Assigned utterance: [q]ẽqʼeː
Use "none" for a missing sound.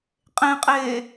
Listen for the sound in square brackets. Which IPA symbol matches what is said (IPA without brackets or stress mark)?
qʼ